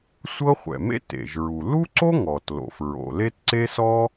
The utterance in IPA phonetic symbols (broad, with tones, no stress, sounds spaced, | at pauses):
sʷ ɤ˥ χʷ ɛ̰˩ m ḛ˥ t ḛ˩ ʒ ɹ u˩ l u˥ ǀ o˥ ŋ ɔ˩ t l o̰˩ f ɹ o̰˩ l e˥ t ǀ e˥ s ɔ˥